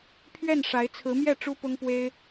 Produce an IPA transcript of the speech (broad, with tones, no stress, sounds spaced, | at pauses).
pʰ ɥ ɛ˥˩ n ʂ a˧˥ ɪ̯ t͡sʰ ɹ̩˧˥ m j ɛ˥˩ ʈ͡ʂ u˥ p ʊ˥ ŋ p w e˥ ɪ̯